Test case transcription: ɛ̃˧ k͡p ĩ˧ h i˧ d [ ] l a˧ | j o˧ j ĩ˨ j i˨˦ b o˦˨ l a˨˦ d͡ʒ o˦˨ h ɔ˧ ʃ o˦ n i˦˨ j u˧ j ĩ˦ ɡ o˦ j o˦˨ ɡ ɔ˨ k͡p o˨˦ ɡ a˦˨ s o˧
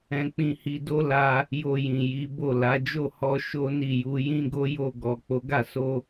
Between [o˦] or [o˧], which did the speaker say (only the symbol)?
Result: o˦